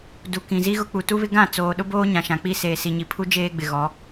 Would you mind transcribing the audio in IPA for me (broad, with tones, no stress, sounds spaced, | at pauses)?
d u˨ k ĩ˨ z i˦ ɣ ʊ˦ k͡p u˨ t u˦ β ɪ˦ ɡ ã˦˨ t͡s oː˨ ɗ ʊ˦ b oː˦ ɲ ã˨ ʃ ã˨ k͡p i˦ s eː˨ s i˨ ɲ i˨ pʰ u˦ d͡ʒ eː˦ ɡ͡b ɪ˨ ɣ ɔ˨˦